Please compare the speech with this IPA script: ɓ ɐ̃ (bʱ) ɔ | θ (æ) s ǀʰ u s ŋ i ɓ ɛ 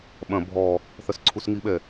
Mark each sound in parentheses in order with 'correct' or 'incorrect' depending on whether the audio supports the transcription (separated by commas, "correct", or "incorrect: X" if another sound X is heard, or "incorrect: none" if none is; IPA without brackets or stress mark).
correct, incorrect: ɐ